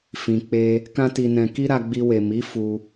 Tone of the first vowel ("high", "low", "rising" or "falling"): low